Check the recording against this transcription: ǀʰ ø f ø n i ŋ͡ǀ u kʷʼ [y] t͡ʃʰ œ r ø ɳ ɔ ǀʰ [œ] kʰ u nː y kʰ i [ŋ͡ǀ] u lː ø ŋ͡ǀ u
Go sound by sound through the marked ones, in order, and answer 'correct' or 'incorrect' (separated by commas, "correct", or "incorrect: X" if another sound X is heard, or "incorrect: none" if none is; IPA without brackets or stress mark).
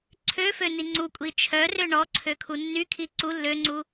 incorrect: i, incorrect: ø, incorrect: ǀ